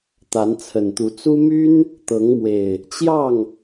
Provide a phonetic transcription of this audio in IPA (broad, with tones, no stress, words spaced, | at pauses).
t̪a˨˦nt͡sʰə˨˩nt̪u˨˦ t͡su˦ my˦n | t̪ɤ˨˦ŋmwe˨˩ɪ̯ | t͡ɕjɑ˥˨ŋ